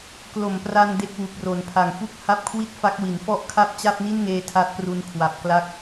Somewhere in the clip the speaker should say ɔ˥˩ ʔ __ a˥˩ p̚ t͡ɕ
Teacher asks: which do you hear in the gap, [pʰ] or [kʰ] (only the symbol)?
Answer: kʰ